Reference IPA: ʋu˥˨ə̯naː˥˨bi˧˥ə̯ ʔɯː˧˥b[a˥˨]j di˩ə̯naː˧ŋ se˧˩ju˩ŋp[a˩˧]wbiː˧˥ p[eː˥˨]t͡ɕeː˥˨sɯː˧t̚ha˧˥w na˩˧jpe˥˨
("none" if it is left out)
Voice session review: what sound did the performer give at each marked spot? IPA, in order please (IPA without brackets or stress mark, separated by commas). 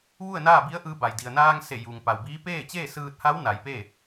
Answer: a˩, a˩, eː˥˨